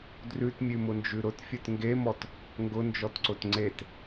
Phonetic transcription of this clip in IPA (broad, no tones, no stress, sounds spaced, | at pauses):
d r ʉ t mʲ ʉ m ʊ n d͡ʒ ʉ ɾ ʊ t fʲ ʊ t ŋ ɡ e m ɔ t | ŋ ɡ ʊ n d͡ʒ ɔ t ǀ ʊ t ŋ͡ǀ e t